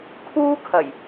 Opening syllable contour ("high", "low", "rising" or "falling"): high